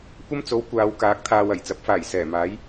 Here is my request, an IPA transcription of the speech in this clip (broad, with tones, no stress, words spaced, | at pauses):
kʷɐ˥mt͡so˨˥w kʷaː˨˧wkaː˨˥k̚t̪ʰaː˨w ɐ˨˩jt͡sɐ˨˥p̚faː˨˩jsɛː˨˩ maː˨˥j